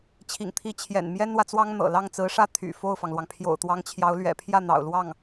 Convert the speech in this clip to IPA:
t͡ɕʰ ḭ˨˩ ŋ t̪ʰ i˧˥ t͡ɕʰ j ɛ̰˨˩ n m j ɛ˥ n w ä˨ t͡s w ɑ˥ ŋ n̪ ɤ̰˨˩ l ɑ˥˩ ŋ t͡s ɹ̩˧˥ ʂ ä˥˩ t̪ʰ y̰˨˩ f o˥˩ ʊ̯ f ɑ˩ ŋ l w ɑ˩ ŋ pʰ j o̰˨˩ ʊ̯ t̪ w ɑ˧˥ ŋ t͡ɕʰ j ɑ˧˥ ʊ̯ l ɥ ɛ̰˨˩ pʰ j ä˥˩ n̪ ɑ̰˨˩ ʊ̯ l w ɑ˥˩ ŋ

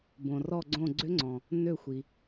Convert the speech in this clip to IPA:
b õ˩ r ɔ˧˩ ɡ͡ǀ õ˧˩ ɡ͡ǀ ʏ˧˥ ŋ͡ǀ ɔ̃˩ | n ø˧˩ xʷ i˩

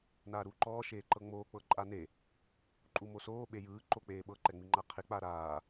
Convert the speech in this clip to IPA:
n aː ɾ uː ǃ ɔː ʃ eː ǃ ɤ ŋ͡m oː k͡p ɤ ǃʼ a n e | ǃʼ u m o s oː ɓ e j ɯː ǃ o k͡p eː ɓ ɤ ǃ ɛ ŋ͡m i ŋ͡ǃ a qʰ e k͡p a ɾ aː

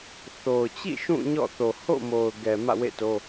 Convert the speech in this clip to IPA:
θ o˨ ʊ̯ t͡ɕ ḭ˦˨ ʃ ũ˦˨ ɲ ɔ̰˦˨ θ o˨ h o̰˦˨ m o˨ ʊ̯ ɡ ɛ˨ m ä̰˦˨ w ḛ˦˨ t o˦

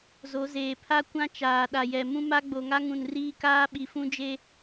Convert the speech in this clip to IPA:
z o˨˦ z eː˨ pʰ a˦ kʷ ã˦ t͡ʃ aː˨ ɗ a˨ j ɛ˨ m ũ˦ m a˦ ɡ͡b o˨ ŋ a˦ ŋ ũ˨ n r iː˦ k aː˦ ɓ i˨ f ũ˦ d͡ʒ e˦

